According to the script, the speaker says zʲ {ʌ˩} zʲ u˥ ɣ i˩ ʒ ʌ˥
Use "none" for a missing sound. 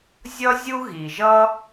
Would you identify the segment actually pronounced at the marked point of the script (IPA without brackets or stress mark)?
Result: ʌ˥